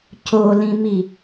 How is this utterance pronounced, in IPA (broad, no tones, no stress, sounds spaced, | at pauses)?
c o l ĩ m i